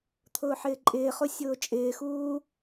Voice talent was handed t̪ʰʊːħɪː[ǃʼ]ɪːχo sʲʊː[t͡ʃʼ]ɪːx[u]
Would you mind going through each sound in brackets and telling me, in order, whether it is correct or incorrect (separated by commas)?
correct, correct, incorrect